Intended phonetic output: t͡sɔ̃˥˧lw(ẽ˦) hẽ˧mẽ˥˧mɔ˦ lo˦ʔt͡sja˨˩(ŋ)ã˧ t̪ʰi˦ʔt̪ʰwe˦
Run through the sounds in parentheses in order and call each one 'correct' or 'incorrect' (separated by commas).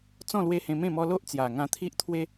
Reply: incorrect, correct